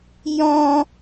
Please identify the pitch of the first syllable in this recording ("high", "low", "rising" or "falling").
high